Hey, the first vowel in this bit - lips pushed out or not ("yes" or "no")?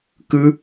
no